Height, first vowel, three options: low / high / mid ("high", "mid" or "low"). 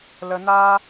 mid